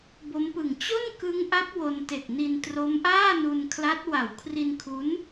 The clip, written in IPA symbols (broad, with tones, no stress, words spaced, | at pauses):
bo˦˥mpɯ˨˩ŋ t͡ɕo˥˩nkɯ˦˥ŋʔa˦˥p̚ wo˧nte˨˩k̚ni˧n tro˦˥mʔaː˥˩nu˧nkʰla˦˥t̚ wa˩˦wkʰri˧nkʰu˦˥n